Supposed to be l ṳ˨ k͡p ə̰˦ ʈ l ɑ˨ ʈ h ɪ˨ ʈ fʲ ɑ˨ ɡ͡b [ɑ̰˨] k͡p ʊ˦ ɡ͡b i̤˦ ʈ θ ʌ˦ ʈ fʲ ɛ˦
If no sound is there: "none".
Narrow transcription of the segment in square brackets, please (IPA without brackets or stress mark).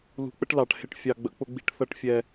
ə̰˨